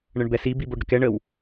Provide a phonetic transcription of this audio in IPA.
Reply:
ɳ ə ɳ b ɛ s i b i b o ɖ ɾ ə k ɛ ɳ ə w

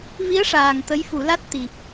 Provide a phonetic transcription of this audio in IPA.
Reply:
v i˧˥ ə̯ ʂ aː˨˩ ŋ t̪ ə˧˥ j f u˨˩˦ l a˦˥ t̚ t̪ i˨˩ p̚

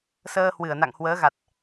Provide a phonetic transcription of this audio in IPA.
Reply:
s əː˧ h w ɨ˧˩ ə̯ n a̰˧˨ ŋ h w əː˨˦ ɣ a˨˩ t̚

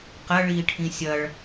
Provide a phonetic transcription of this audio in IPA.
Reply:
q ɐ ɭ iː ʈʰ ĩ sʲ ɐ ɭ

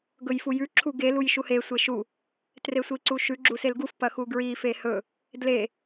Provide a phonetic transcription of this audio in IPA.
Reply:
ɡ ɵ j f u j ʉ ǁʰ u ɡ e l u j ʃ u h e sʷ e ʃ u | t r e sʷ i ǀ u ʃ ʉ ɡ͡ǁ u s e l ɡ u f p ɐ x u ɡ ɹ i f e h ɵ | d l e

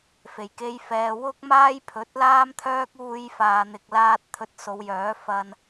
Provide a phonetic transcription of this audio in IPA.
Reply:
f e˨˩ j k e˧ j f ɛː˨ w ʊ˥ k̚ m aː˥ j pʰ ɵ˨˥ t̚ l aː˥ m t̪ʰ œː˥ k̚ uː˧ j f aː˨ n̪ ɪ˨ k̚ l aː˧ t̚ t̪ʰ ɵ˧ t̚ s o˨˧ w j œː˨˥ f ɐ˧ n

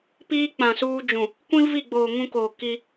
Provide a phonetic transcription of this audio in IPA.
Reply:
p iː˦ k͡p ã˨ s uː˦ d͡ʒ ũ˨ | kʷ ĩ˦ v i˦˨ ɡ͡b oː˨ ŋ ũ˦ k oː˨ k i˦

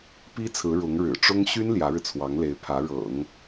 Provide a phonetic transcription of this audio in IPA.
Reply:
p i˥ t͡sʰ ɹ̩˧˥ ɻ ʊ˧˥ ŋ ɻ ɻ̩˨˩ ʈ͡ʂ ʊ˥ ŋ ɕ y˥ n l j ä˧˥ ɻ ɻ̩˧ t͡sʰ w ɑ˧˥ ŋ l e˧˥ ɪ̯ pʰ ä˧˥ ɻ ɤ̰˨˩˦ ŋ

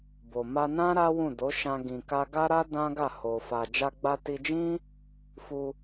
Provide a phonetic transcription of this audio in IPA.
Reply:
b o˨ m a˧ n ã˦ ɾ a˦ w ũ˦˨ d o˨˦ ʃ ã˧ ɡ ĩ˨ k a˧ ɡ a˦ ɾ a˦ d ã˦ ɡ a˦˨ h o˨ f a˨ d͡ʒ a˧ ɡ͡b a˧ t i˧ d͡ʒ ĩ˦ | f u˧

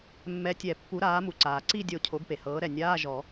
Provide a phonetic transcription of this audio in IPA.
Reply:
mː ɛ˨˦ tʲ ɛ˨˩˦ pː u˨˦ ɾ aː˨˦ m u˩ ǀ aː˩ ǀ i˦˨ dʲ o˨˩˦ cʰ o˨˦ ɡ p e˩ h ɤː˨˦ ɾ ɛ˩ nʲ aː˧˥˧ ʒ ɔ˨˩˦

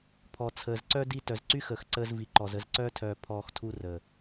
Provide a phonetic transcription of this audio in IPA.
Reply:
pʰ ɔ˨ t͡sʰ əː˨ z ǀ œ˦ d i˦ t œ˨ z ǀ y˦ x əː˨ x ǀ əː˦ z v i˨ ǃ ɔ˨ z ə˦ z ǀ œː˦ tʰ œː˨ pʰ ɔː˨ x tʰ u˦ r əː˨

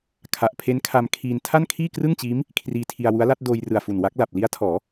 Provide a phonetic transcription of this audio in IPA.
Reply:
kʰ a˨˩ ʔ pʰ e˦˥ n kʰ a˧ m kʰ iː˧ n tʰ a˥˩ n kʰ iː˥˩ k r ɯ˥˩ ŋ t͡ɕ iː˦˥ m | kʰ r iː˧ tʰ i˧ a̯ w u˦˥ a̯ l a˦˥ t̚ d oː˧ j r ɯ˨˩ a̯ f u˨˩ n w a˦˥ k̚ l a˨˩ p̚ l i˦˥ a̯ tʰ ɔː˩˦

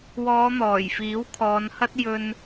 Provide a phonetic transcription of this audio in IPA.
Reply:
w ɔː˨˧ n̪ ɔː˨˩ j f iː˨˥ w kʰ ɔː˨˧ n h ɐ˥ t̚ j ɵ˧ n

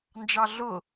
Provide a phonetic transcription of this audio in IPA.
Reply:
n d͡ʒ ɑ ɮ ʊ

